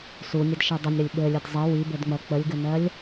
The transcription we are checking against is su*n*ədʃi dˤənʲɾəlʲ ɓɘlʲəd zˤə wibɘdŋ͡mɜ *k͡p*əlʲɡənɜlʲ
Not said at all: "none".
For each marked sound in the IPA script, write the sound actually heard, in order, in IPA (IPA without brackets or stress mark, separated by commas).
nʲ, k͡p